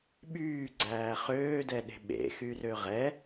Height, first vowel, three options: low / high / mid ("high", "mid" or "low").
high